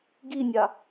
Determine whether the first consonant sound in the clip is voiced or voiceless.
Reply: voiced